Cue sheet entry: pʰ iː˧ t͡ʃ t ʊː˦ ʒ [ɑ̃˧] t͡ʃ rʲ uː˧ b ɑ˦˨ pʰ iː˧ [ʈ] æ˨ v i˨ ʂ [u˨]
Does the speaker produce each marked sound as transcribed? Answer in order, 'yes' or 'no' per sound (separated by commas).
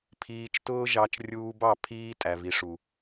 no, no, yes